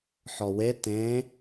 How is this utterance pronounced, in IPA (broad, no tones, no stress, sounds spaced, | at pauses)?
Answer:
ħ ɔ w e t ẽ